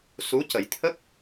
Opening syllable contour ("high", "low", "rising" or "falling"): rising